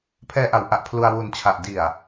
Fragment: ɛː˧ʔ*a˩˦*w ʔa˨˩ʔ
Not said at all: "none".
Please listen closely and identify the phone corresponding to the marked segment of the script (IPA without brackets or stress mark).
a˩˦